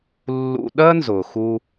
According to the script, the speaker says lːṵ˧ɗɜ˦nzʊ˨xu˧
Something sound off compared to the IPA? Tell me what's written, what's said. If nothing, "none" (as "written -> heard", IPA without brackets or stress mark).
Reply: none